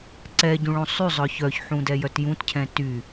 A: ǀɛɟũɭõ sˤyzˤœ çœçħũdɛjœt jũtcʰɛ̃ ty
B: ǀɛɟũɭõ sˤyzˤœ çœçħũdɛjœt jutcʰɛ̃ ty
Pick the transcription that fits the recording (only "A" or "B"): A